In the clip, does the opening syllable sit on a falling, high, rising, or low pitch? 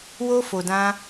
high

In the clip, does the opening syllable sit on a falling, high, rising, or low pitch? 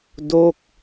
falling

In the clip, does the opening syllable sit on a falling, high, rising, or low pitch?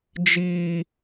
high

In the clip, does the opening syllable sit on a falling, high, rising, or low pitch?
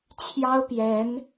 high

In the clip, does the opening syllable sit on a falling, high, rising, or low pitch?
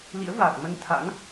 rising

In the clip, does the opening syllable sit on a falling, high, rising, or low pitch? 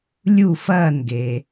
falling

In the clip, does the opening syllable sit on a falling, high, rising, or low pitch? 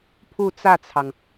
falling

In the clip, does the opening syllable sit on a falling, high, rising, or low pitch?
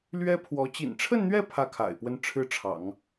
high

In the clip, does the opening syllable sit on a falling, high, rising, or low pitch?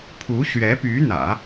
rising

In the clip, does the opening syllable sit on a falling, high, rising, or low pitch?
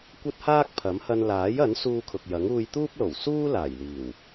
high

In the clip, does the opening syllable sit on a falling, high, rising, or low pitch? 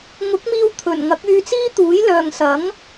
rising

